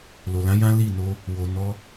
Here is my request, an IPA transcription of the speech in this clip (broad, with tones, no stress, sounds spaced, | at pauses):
l o˨ l ã˨˦ j ã˦ l i˦˨ n o˧ | w o˨ n ɔ˧